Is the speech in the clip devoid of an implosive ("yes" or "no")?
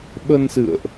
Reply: no